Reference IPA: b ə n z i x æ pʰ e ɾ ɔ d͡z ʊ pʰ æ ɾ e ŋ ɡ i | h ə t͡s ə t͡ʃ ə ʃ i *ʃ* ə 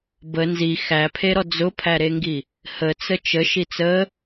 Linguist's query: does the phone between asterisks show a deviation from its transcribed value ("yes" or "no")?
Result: yes